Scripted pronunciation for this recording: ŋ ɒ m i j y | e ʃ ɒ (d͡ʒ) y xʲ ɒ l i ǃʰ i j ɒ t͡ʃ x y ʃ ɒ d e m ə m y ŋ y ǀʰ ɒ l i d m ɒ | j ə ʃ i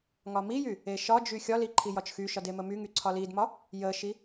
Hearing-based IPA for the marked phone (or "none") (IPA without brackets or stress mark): d͡ʒ